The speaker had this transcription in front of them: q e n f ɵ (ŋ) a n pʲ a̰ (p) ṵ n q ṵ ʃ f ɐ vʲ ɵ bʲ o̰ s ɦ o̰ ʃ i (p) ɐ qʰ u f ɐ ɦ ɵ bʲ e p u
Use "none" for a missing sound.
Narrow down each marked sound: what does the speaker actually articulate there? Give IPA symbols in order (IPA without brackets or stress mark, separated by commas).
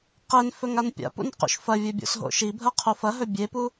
ŋ, p, bʱ